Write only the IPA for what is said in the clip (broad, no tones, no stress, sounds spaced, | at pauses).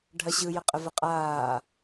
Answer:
ɖʱ ɐ ɕ ɯ j ə qʼ ə v ə qʼ aː